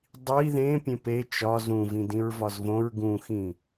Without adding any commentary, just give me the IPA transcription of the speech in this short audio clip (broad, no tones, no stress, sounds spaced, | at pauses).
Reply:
dˤ i ð ẽ pʲ ẽ p e t͡ʃ ɒ z ũ v ĩ d ĩ ɹ v ɒ z v õ ɹ ɡ ũ x ĩ